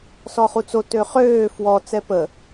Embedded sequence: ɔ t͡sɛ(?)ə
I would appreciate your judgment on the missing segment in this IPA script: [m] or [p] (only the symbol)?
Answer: p